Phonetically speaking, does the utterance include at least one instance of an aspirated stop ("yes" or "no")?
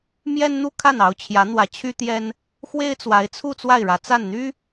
yes